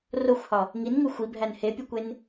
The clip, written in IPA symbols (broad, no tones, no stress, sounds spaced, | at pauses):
r o xʷ h ɒ | ŋ i n ŋ u xʷ i bʱ æ n h e pʲ u kʷ e n